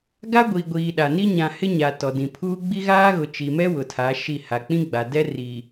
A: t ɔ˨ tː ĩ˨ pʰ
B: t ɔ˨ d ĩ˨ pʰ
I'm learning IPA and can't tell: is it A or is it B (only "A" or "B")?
B